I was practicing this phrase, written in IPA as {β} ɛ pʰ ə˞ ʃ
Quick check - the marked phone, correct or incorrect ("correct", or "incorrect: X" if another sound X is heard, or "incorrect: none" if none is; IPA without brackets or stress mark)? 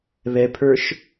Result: correct